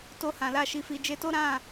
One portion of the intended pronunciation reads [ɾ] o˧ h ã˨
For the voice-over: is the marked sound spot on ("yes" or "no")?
no